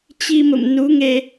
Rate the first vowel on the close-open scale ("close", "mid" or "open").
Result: close